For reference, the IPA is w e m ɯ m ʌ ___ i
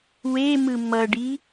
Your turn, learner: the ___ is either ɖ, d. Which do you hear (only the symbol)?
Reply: ɖ